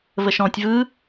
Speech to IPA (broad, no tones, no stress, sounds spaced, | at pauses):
v ə ʃ ɔ̃ tʲ v ɯ